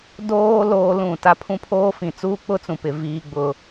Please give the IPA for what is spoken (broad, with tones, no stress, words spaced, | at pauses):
doː˦ loː˦lũ˦˨ ta˦pʰũ˦pʰoː˦fĩ˨ t͡suː˦k͡pʊ˦t͡sũ˨pɪ˨ viː˦ɡ͡bʊ˦